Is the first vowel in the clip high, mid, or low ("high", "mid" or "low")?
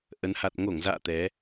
mid